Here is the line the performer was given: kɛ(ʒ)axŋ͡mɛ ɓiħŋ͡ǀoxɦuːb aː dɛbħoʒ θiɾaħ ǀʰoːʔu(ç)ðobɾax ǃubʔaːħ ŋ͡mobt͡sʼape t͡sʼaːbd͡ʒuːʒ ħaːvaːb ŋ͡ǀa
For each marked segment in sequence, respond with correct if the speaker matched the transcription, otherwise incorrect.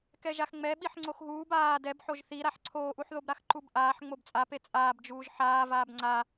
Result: correct, incorrect

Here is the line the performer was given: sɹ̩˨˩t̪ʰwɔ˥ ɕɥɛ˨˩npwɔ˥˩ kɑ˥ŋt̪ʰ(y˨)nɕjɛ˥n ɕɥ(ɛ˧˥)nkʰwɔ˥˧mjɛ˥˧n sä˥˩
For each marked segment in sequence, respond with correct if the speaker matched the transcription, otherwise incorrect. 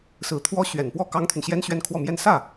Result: correct, incorrect

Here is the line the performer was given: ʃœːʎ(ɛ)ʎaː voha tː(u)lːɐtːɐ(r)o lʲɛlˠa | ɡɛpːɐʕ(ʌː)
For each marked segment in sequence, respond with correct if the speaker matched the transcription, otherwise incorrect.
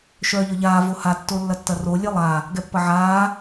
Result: incorrect, incorrect, correct, incorrect

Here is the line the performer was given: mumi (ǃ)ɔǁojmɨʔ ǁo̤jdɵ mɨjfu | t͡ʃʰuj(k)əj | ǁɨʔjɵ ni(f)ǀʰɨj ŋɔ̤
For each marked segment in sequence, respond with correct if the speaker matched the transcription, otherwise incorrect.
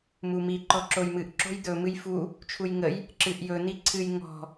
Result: correct, incorrect, incorrect

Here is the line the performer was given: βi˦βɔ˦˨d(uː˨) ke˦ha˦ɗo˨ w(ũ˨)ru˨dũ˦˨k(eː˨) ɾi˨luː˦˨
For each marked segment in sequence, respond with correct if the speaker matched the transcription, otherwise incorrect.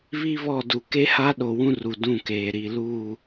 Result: incorrect, incorrect, correct

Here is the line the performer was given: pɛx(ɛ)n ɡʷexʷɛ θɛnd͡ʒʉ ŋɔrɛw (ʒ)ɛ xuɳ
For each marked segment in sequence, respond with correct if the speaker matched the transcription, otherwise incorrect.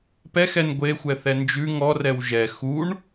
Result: correct, correct

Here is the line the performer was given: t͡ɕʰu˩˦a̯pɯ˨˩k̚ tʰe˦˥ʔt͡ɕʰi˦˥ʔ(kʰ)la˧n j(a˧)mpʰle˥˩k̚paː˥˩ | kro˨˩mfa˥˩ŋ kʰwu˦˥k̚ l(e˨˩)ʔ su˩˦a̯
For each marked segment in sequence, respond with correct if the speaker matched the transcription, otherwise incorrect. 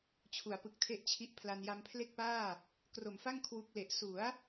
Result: incorrect, correct, correct

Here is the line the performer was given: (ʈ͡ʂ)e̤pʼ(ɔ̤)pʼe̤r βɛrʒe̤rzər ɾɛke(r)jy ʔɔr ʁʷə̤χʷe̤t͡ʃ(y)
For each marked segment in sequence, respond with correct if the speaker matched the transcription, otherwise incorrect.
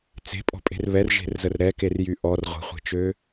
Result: incorrect, correct, correct, incorrect

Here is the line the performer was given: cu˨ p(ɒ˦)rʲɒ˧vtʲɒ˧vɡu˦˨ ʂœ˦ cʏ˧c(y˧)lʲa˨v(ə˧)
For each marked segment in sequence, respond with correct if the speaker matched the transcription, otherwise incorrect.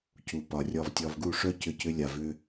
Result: incorrect, incorrect, incorrect

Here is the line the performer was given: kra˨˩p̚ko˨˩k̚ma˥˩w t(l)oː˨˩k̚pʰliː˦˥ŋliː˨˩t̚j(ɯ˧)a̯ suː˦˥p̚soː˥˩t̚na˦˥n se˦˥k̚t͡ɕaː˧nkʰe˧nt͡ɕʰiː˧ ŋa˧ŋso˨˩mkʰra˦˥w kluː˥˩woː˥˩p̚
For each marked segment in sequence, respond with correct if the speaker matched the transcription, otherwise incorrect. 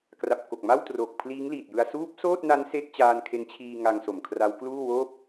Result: incorrect, correct

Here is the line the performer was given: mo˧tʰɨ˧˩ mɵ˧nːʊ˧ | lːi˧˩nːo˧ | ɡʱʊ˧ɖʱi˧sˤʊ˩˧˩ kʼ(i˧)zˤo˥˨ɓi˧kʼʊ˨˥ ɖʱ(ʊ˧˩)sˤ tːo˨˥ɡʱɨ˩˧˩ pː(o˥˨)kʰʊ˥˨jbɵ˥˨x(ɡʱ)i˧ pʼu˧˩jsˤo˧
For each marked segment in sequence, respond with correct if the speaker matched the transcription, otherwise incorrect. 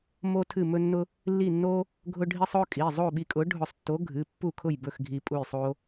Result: incorrect, correct, incorrect, correct

